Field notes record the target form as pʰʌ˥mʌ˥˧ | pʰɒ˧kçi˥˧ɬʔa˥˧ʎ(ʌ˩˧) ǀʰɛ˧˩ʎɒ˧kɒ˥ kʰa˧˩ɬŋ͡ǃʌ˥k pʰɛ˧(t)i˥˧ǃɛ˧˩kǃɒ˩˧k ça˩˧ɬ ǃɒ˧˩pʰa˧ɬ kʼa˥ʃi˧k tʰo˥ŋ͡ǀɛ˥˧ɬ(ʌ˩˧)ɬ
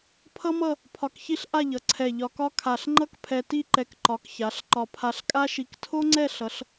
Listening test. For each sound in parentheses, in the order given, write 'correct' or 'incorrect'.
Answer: correct, correct, correct

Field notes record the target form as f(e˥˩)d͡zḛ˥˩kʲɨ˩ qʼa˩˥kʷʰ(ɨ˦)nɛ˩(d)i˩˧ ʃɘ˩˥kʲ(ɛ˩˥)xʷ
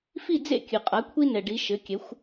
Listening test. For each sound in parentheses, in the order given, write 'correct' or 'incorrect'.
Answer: incorrect: i˥˩, incorrect: i˦, incorrect: ɖ, correct

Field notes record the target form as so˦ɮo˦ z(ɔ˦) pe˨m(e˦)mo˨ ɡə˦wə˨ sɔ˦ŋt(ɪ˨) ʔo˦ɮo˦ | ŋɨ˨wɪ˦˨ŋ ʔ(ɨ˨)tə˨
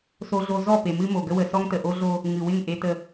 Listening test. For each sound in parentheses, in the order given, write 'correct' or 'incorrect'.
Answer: incorrect: ɔ˦˨, incorrect: ɨ˦, incorrect: ə˨, incorrect: e˨

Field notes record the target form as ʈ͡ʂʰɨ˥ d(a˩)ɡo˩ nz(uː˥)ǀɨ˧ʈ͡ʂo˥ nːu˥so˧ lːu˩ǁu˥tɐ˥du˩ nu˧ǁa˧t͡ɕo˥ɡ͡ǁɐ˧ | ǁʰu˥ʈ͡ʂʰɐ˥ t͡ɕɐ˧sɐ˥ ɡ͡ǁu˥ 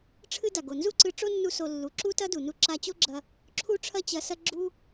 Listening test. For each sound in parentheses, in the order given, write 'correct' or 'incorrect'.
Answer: correct, incorrect: u˥

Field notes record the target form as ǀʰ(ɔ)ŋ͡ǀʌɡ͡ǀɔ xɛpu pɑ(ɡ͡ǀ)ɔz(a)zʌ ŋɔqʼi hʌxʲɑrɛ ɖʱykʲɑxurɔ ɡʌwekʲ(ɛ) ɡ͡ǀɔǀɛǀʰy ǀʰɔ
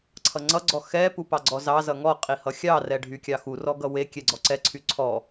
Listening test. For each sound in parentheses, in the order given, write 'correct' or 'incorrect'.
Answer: incorrect: ʌ, correct, incorrect: ɑ, correct

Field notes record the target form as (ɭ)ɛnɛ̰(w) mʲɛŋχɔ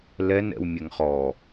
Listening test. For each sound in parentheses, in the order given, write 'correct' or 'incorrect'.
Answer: incorrect: l, correct

